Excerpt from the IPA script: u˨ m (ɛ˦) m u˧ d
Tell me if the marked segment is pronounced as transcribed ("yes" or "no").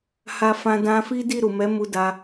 no